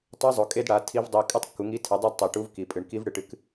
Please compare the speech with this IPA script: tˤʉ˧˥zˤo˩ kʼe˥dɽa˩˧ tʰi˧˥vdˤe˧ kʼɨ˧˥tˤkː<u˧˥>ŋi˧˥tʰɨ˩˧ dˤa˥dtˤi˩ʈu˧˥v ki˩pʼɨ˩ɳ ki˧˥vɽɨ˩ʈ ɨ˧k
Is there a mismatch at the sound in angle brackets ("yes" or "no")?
yes